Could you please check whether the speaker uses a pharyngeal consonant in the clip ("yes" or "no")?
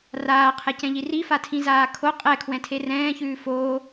no